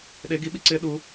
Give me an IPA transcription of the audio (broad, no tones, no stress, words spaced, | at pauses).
ɗe ɡiɓi ǀɪ ɗu